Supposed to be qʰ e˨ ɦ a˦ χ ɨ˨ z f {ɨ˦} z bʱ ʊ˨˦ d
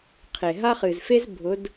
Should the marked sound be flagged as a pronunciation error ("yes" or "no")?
yes